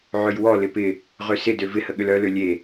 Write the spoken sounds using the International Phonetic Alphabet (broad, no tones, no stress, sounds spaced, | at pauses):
ʕ ø j w ɔ l ɪ p ɪ | ʁ ø s ɪ d ø v ɪ h ə ɠ ʏ l œ l ø lʲ e